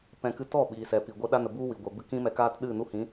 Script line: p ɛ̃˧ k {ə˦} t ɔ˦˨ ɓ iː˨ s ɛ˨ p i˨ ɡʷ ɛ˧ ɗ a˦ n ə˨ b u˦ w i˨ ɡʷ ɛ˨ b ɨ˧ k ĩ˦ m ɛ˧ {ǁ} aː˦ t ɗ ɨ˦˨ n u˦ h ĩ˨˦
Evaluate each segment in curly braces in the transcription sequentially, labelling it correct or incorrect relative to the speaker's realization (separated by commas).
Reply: incorrect, incorrect